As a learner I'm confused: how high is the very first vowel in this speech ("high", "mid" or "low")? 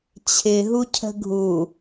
high